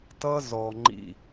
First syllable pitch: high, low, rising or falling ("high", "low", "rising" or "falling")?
high